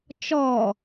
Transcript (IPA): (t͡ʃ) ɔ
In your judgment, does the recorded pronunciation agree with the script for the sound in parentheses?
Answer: yes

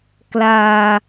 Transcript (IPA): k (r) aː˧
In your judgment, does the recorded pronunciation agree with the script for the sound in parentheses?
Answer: no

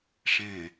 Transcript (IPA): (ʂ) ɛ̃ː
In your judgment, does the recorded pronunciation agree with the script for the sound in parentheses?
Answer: yes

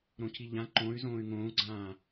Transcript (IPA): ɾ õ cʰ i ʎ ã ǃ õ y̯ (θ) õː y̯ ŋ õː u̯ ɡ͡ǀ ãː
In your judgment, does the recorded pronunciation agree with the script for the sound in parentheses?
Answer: no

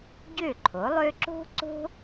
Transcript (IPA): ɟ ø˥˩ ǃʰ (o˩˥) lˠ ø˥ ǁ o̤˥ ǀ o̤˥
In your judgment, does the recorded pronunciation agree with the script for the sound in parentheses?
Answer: yes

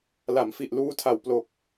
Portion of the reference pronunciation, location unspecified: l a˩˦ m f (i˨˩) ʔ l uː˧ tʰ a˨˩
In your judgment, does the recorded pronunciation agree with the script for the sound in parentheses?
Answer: yes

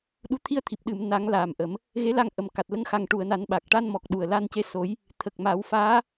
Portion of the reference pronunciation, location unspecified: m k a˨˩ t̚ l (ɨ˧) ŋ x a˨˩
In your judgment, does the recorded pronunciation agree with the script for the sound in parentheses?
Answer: no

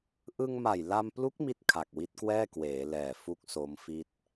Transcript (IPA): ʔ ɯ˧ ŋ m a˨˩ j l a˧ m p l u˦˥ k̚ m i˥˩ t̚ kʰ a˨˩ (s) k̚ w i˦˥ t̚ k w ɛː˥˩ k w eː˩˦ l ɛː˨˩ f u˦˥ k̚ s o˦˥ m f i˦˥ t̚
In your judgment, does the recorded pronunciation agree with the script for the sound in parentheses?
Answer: no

